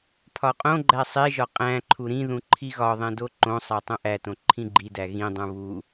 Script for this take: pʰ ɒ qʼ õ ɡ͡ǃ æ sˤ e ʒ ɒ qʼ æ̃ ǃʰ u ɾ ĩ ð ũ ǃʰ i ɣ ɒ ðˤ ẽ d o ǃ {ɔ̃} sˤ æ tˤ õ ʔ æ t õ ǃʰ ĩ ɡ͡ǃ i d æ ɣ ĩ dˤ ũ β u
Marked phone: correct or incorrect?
incorrect